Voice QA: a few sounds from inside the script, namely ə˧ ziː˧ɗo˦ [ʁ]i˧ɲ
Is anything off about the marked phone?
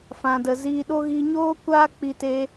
yes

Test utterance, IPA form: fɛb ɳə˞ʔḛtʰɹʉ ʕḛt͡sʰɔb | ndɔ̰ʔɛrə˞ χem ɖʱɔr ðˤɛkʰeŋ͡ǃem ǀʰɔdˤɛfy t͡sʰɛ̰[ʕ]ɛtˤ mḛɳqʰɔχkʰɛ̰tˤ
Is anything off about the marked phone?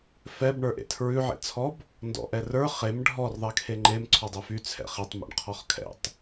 yes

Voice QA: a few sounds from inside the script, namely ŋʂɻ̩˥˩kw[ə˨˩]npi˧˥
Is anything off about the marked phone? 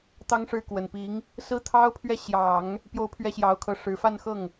no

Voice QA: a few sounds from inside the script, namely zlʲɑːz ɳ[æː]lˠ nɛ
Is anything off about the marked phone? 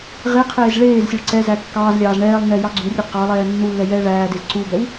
yes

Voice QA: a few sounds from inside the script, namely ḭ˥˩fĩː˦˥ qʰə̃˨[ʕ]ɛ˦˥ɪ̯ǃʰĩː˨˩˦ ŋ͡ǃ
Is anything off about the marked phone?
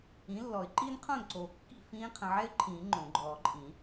no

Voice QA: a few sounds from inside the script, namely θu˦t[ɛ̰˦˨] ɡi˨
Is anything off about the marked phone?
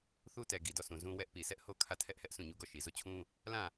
yes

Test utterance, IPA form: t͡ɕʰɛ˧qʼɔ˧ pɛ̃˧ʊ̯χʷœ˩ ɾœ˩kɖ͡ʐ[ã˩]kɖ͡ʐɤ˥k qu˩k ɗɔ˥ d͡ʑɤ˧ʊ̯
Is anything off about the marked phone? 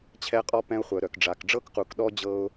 yes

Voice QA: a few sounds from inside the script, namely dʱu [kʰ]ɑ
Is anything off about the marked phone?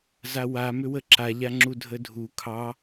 no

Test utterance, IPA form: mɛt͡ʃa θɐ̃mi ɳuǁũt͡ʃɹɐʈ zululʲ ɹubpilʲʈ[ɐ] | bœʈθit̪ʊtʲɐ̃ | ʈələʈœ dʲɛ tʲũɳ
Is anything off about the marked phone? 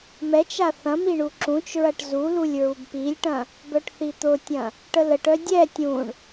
yes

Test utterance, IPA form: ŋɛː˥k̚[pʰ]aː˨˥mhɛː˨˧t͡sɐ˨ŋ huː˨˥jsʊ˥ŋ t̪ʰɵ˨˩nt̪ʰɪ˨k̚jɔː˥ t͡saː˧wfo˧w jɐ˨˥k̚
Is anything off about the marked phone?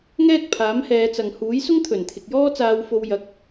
no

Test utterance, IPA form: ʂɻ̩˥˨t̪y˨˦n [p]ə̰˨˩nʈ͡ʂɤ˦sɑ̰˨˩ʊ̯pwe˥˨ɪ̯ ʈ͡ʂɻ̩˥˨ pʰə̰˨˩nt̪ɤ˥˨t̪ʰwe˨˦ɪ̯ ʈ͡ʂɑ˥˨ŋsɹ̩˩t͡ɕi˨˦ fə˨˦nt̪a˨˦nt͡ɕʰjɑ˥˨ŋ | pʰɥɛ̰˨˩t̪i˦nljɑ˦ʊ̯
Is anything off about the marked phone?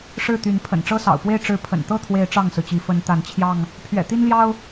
yes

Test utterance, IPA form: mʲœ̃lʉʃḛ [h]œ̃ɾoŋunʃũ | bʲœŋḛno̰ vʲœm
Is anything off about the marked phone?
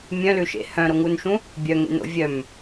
no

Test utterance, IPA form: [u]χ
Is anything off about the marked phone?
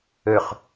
yes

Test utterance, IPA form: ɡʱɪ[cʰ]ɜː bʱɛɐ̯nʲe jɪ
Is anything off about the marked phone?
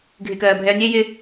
yes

